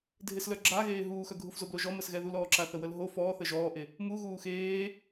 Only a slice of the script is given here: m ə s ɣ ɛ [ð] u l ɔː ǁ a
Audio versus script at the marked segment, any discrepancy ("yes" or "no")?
no